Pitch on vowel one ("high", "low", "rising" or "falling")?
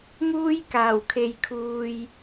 high